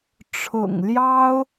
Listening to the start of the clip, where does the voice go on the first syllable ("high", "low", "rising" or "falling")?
low